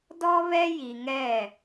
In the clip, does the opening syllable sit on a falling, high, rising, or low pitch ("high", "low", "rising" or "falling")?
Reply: high